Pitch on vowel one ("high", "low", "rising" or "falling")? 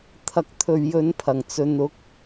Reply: low